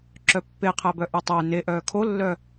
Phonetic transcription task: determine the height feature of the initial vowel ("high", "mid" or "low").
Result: mid